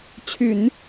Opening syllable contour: low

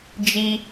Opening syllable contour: high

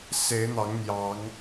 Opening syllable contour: rising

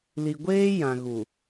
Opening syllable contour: low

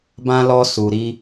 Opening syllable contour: high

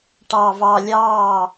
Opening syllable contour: low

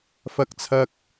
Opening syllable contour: high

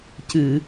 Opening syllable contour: low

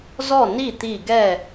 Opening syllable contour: falling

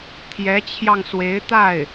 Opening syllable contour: rising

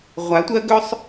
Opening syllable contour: rising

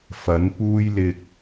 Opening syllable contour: rising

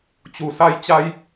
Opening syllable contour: low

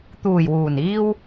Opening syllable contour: low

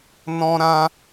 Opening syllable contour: high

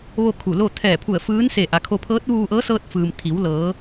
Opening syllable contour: falling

